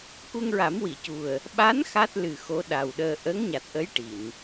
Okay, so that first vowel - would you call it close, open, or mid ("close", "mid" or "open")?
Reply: close